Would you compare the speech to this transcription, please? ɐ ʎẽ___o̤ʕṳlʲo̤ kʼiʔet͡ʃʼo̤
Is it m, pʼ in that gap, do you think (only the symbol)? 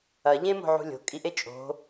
m